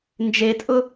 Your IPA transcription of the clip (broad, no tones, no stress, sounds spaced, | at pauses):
n d͡ʒ e tʼ ʊ